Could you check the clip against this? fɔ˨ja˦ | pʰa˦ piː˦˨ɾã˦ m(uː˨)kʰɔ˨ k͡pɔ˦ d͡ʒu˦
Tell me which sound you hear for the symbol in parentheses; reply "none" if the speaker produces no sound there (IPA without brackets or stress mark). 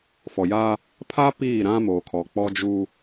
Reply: oː˨